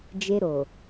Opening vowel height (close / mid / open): mid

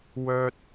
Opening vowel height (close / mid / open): mid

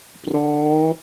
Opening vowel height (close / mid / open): mid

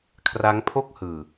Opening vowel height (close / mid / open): open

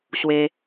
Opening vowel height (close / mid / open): mid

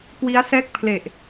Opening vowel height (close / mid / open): close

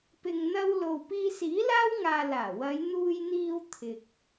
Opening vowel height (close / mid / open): close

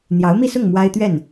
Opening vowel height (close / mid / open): open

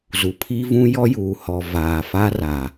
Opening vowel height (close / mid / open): close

